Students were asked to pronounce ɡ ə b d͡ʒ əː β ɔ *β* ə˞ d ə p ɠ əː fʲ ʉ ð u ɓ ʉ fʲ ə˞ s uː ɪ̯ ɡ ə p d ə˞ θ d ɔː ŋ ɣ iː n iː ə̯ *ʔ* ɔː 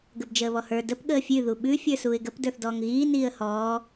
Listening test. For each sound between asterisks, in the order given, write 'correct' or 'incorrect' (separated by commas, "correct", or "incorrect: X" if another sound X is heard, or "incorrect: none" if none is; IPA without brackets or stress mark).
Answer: incorrect: h, incorrect: h